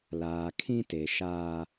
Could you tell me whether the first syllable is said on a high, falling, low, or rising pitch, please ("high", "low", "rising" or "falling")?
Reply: low